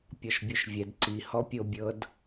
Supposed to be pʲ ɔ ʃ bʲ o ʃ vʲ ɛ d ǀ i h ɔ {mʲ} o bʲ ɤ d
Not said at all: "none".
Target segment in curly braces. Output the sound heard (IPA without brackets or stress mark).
pʲ